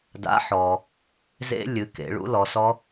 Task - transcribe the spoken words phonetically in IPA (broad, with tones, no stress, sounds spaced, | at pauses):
d a̰˨˥ ħ ɔ˩ | z ḛ˦˥ lʲ ɨ˩˧ k ḛ˩˧ ɭ ṵ˨˥ l ɔ˩˧ s ɔ˦˥